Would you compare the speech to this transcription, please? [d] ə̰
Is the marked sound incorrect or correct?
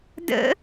correct